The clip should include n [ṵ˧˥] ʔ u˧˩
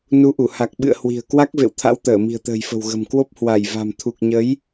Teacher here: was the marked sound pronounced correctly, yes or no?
no